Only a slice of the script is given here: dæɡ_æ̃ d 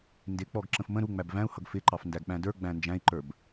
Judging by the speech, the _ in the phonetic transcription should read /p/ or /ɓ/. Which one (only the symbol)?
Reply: ɓ